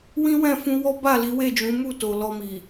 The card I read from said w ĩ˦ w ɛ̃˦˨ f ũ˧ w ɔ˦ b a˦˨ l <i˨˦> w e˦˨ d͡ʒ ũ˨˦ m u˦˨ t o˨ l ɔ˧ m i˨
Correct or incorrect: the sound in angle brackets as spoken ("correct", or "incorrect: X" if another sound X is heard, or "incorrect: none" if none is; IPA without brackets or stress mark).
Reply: correct